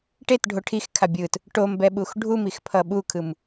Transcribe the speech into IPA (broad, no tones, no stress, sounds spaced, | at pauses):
ʈ e t ɖʱ o ʈʰ i x kʰ a bʲ ɯ t | ʈ o m b ɛ ɓ u x ɖʱ u m i x pʰ ʌ ɓ u kʰ ɯ m